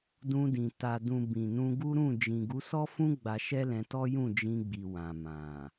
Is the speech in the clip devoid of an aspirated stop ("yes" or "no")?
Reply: yes